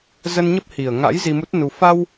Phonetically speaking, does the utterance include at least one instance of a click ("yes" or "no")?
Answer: no